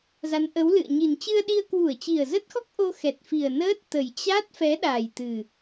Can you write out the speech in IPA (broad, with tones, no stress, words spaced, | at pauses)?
za˨˦nʔə˨˦wlɨ̰˧˨ə̯ɲi˨˩n t͡ɕɨ˧ə̯ɗi˧ə̯ kwu˧˩ə̯t͡ɕi˨˩ə̯zə˦˥t̚xɔ˦˥k̚ ʔo˧xɛ˨˩t̚ fi˨˩ə̯nəː˦˥t̚t̪ə˨˩j t͡ɕa˦˥t̚fɛ˨˦ɗa˨˩j t̪ɨ˨˩